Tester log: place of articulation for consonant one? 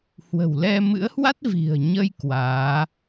glottal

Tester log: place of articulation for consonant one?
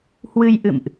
glottal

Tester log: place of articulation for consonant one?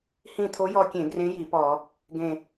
glottal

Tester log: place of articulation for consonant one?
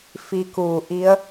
labial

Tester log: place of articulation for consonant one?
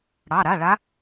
retroflex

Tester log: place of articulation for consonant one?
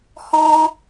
glottal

